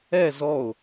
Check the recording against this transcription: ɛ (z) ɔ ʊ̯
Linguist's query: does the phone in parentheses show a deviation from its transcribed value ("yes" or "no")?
no